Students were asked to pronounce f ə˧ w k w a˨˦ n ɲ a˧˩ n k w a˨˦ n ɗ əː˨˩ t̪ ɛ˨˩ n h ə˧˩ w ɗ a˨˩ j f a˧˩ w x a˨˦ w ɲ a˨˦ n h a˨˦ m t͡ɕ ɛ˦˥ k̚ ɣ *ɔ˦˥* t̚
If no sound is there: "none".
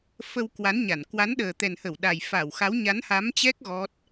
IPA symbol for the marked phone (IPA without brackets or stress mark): ɔ˦˥